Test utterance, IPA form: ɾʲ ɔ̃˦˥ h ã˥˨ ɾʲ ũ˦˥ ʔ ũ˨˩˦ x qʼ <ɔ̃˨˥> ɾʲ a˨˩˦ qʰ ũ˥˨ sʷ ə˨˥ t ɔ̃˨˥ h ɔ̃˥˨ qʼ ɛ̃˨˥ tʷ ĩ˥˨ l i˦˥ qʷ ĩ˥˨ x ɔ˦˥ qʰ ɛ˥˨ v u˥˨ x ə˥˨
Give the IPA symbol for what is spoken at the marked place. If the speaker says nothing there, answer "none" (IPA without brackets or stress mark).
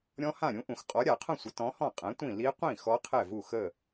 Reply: ɔ˨˥